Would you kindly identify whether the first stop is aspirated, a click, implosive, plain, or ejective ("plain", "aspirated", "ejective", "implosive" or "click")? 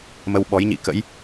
implosive